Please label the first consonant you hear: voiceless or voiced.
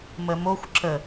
voiced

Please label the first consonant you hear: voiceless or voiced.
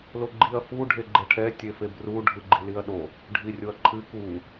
voiced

